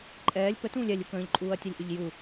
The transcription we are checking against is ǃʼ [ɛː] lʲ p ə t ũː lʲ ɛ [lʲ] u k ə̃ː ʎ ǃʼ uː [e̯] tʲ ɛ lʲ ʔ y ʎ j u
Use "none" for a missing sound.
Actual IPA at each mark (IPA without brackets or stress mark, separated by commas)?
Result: ɛː, lʲ, ɐ̯